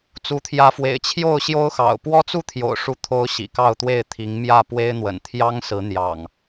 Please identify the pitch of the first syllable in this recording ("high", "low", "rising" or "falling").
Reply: rising